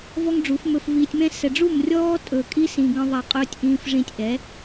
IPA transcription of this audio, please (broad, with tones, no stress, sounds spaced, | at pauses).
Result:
v ɔ˦ ŋ ɖ͡ʐ u˨˦ f m ɵ˧ f v iː˧ tʲ m ɛ̃˦ s ɛ˨ ɖ͡ʐ u˦˨ m rʲ ɔː˦ tʼ ɵ˨ kʼ i˦ s ĩ˨ ɡ ə̃˧ ðˤ a˧ qʼ ɵː˧ tʲ ʔ ĩː˨ f ʐ ĩ˧ tʲ ʔ ɛ˨˦